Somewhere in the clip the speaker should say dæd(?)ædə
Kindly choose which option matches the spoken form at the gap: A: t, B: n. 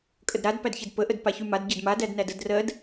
B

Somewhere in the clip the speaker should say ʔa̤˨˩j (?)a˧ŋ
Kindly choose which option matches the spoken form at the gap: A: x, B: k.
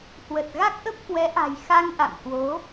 A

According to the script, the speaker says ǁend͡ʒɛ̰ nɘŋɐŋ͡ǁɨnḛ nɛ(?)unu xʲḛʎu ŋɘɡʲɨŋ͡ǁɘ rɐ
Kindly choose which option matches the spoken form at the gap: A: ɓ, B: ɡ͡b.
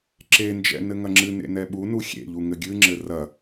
A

